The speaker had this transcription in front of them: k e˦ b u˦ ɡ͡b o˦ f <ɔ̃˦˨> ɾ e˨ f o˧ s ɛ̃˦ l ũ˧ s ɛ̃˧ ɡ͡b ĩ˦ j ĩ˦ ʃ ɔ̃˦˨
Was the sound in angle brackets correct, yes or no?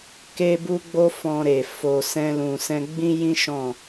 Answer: no